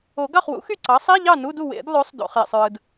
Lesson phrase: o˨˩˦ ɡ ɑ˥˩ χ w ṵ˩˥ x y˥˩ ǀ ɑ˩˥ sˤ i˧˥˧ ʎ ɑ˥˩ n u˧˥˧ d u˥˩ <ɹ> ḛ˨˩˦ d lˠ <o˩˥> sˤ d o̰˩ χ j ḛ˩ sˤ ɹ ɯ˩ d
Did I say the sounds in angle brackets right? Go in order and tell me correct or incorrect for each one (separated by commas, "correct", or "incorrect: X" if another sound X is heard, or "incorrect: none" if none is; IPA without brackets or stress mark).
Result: incorrect: w, correct